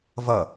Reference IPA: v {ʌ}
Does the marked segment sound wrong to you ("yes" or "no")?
no